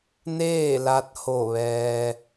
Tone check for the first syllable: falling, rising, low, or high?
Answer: falling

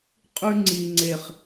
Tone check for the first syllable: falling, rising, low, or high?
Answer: low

